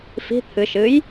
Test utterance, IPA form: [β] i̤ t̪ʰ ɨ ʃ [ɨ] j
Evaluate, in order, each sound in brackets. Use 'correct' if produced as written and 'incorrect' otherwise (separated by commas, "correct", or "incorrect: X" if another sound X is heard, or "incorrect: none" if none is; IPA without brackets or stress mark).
incorrect: f, correct